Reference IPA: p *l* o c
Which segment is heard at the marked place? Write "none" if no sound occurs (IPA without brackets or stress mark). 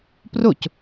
r